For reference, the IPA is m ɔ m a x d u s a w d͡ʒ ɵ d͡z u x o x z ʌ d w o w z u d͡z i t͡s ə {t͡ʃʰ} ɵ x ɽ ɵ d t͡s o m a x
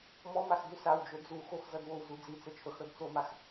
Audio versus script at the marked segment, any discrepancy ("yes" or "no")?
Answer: no